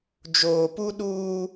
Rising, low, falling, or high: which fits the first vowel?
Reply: low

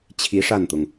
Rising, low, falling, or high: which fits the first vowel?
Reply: rising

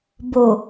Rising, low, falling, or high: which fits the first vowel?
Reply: low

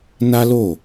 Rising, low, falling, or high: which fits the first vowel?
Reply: high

